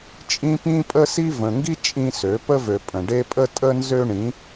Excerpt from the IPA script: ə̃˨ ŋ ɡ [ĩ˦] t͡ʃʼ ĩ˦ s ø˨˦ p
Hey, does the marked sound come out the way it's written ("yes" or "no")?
no